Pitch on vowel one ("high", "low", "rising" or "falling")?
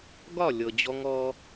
falling